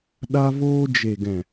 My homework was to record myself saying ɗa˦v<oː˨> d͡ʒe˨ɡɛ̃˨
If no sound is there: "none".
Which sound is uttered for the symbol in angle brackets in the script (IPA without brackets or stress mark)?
oː˦